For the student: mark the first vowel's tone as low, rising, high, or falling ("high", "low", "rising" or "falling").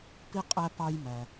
high